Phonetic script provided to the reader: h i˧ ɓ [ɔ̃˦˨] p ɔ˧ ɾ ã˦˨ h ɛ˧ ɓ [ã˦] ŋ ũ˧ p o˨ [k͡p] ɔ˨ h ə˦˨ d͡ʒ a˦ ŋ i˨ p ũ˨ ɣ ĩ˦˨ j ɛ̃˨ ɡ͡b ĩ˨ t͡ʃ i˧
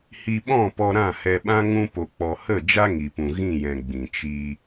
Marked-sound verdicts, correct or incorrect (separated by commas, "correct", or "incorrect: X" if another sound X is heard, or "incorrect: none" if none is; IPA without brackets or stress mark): correct, correct, correct